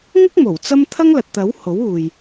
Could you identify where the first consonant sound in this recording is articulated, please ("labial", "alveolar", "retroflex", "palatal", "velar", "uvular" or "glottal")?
velar